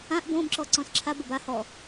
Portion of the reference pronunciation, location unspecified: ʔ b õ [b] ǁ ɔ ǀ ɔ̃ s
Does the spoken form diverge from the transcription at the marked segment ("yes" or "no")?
no